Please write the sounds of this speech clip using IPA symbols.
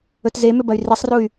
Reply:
ɵ t z e m ʏ b ɐ y̯ r i sˤ r u y̯

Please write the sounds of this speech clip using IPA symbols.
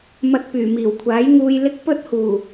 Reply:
m ɐ˧ t̚ p yː˨˩ m iː˨˩ w kʷʰ aː˨˥ j ŋ uː˧ j l ɪ˥ k̚ p ɵ˥ t̚ h uː˨˩

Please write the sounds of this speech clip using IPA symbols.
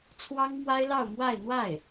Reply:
t͡sʰ w ɑ˥ ŋ m w a˥ ɪ̯ l ɑ˥˧ ʊ̯ m w a˥˧ ɪ̯ n̪ w a˥˩ ɪ̯

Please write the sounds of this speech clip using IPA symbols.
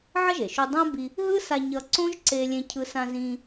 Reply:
ʕ ʌ˥ ʒ e˩ ʃ u˧ dˤ ã˥ b i˧ | ɦ ɯ˥ s a˧ ɲ ʌ˧ ǀ õ˥ ʒ ǀ e˥ lʲ ẽ˥ cʰ ɯ˧ s ã˧ z ĩ˧

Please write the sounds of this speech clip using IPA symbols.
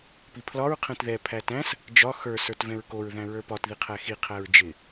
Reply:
p i pʰ l ɒ ɹ qʰ ɛ̃ t ð ɛ pʰ æ t æ̃ s | d͡ʒ ɒ x ə˞ s ə˞ t v ɛ̃ ɹ k o ɹ ð æ̃ ɹ ə˞ p ɒ t ð i qʰ æ x i qʰ æ ɹ d͡ʒ ɪ

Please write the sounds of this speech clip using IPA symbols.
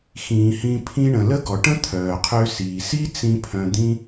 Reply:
x ĩː˨ h ĩ˧ pʰ ĩ˧ ɳ ə̃˨ l ə˦ ɡ ɔ˨ ʈ ə̃˦ t̪ʰ œː˨ qʰ ø˧ s iː˨ s i˦ t͡s ĩ˧ pʰ œ̃˧ d̪ ĩ˦

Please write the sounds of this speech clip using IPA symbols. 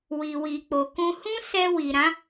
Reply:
w i˨ w i˨ k͡p o˨ k ũ˧ h ũ˦ s ɛ˧ w i˨ ɾ ã˨˦

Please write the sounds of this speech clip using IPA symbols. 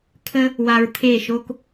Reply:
kʰ ə˦ | w a˧ ɹ t̪ʰ e˦˨ ʃ o˦ k

